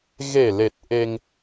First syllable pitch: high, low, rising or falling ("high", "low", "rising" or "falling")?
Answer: low